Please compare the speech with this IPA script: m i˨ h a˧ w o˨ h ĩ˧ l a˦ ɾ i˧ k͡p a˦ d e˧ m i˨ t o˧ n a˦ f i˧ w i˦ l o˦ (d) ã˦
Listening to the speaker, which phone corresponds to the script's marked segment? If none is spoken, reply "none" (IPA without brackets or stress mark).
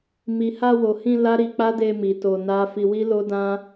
d